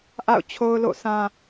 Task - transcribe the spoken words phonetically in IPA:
ʔa̰˦˨ʊ̯ t͡ɕʰo˦ʊ̯lo̰˦˨sã˦

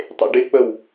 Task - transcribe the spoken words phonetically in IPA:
tˤḛɖɪk͡pəw

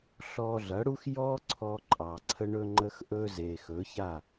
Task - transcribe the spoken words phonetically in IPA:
ɬɔ˧ɮɐ˨˦ɽu˦x jɔ˦ǀʰɔ˧ǃʼɑ˨ ǀʰə˧ɳɵ˧ŋ͡ǃə˧x ʔɵ˧ze˨ xɵ˨˦ça˦˨

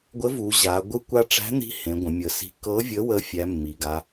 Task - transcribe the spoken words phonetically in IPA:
ɡʷə˧˥vu˩˧ ʑa˩˧ ɡʷɯ˧˥kʷa˧˥ʈ͡ʂæ̤˧˥n̪i̤˧˥ hẽ˩˧ɡʷə̃˩˧mʲə˩˧si̤˧˥ kɤ˧˥vʲə˧˥wə˧˥ fʲæ˧˥mːi˩˧ɡa˧˥

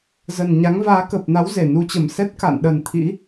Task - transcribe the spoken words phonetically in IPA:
zə˨˩nɲa˨˦ŋ vaː˨˦kə˨˩p̚na˨˦w ze˧˩nu˧t͡ɕə˧˩m sɛ˦˥t̚ka̰˧˨nɗə˨˩n t̪ʰḭ˧˥

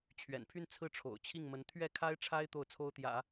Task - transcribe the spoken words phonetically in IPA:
t͡ɕʰɥɛ̰˨˩npʰy˥˧n t͡sʰɹ̩˥˩ʈ͡ʂʰo̰˨˩ʊ̯t͡ɕʰi˥˩ŋmə˧˥n t̪ʰɥɛ˥˩kʰa˥ɪ̯ʈ͡ʂʰa˥ɪ̯ t̪o˥˩ʊ̯t͡sʰo˥ʊ̯t̪jä̰˨˩˦

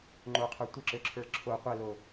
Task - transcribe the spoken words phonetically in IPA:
ŋ͡ǃoqʰə˞ tʷəǁøǁʰə˞ ǁʰo qʷɛlo

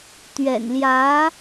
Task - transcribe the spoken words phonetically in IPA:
t̪ɥɛ̰˨˩nljä˧˥

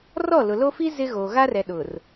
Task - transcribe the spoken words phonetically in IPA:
rɔ˦˨lʊ˨lo˦ fi˦ zɪ˦ ɣoː˨ ɣa˦rɛ˨ ɗʊ˨r

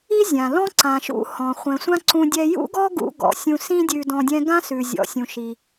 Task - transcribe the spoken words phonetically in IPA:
i˥zʲã˩ lɔ̃˥ ǀã˩ʃṵ˧ hɔ̃˩ χʷɛ̃˩sʷã˥ ǀũ˧dʲɛ˧ jṵ˥ɡɔ˥ ɡṵ˧ ɡɔ̰˩sʲũ˧sĩ˥ dʲʉ˧dɔ̃˧dʲɛ̃˥ ɡã˥sʉ˩ zʲɔ̰˩ sʲũ˩ʃi˩

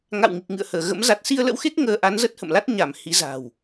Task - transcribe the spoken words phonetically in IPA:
ŋa̰˧˨wŋi˨˩k̚ŋɨ̰˧˨ə̯həː˧˩ ɣə̰˧˥m za˨˩t̚si˧ə̯lə̰˧˥wxe˦˥k̚ ŋəː˧ ʔa˨˦nzə˦˥t̚hə̰˧˨mla˦˥t̚ ɲa˧˩m hi˨˦za̤˨˩w

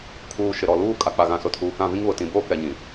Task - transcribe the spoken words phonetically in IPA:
kʰuː˨ ʃɪ˨ɾɔ˨luː˦ kʼa˨k͡pa˨ɣã˨ sʊ˨tʰuː˨kã˦˨vĩ˦ŋ βʊ˨tĩ˨boː˦ kɛ˨ɲĩ˨

